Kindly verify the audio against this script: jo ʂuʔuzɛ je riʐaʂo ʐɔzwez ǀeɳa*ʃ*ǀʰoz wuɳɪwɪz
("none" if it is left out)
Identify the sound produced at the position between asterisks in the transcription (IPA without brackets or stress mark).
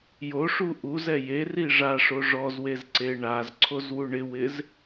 z